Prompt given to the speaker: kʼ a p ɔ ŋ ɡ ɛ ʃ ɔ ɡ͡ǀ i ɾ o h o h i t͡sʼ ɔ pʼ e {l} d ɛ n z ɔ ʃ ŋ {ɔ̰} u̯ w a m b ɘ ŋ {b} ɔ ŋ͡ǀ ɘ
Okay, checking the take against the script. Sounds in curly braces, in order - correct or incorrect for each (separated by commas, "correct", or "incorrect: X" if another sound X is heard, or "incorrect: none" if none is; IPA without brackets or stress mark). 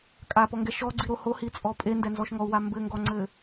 incorrect: n, incorrect: ɔ, incorrect: ɡ